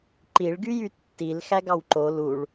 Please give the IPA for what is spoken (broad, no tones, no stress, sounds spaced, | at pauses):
ǃ i ɭ ɡ y j y tː i l x æ ɡ ɑ w ǃ o l u ɭ